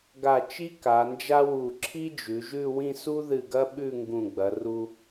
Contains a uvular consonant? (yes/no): no